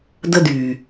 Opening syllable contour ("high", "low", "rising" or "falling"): high